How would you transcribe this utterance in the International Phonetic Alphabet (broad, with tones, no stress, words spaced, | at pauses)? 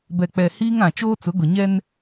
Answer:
bɛ˨k͡pɛ˨ hiː˦ŋã˨ t͡ʃoː˦t͡sʊ˨˦ɡʊ˨ɲɛ˦n